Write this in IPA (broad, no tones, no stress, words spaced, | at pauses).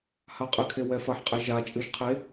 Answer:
haqʼɨkʰe wɛfɐħqʼɛ ʒat͡ʃʼɨʒ qʰe